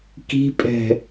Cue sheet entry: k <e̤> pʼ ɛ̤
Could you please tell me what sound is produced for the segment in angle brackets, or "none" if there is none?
i̤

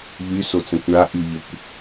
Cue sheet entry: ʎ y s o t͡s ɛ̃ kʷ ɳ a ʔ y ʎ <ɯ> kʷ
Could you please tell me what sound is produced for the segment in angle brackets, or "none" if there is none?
ə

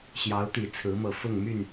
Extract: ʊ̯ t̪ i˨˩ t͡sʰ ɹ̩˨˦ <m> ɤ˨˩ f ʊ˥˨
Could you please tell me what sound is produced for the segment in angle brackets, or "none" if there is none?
m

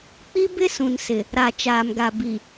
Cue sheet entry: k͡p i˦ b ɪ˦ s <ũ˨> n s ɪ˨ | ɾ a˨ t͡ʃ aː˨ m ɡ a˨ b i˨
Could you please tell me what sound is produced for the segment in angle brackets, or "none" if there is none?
ũ˨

